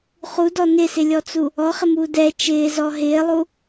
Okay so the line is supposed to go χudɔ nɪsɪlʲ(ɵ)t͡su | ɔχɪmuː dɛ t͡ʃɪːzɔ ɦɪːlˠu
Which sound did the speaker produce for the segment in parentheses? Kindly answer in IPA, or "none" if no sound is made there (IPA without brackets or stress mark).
ɔ